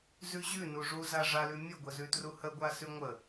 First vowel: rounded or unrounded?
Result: rounded